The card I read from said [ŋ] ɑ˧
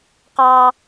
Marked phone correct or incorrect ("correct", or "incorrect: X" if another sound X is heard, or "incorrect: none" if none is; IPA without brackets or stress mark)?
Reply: incorrect: q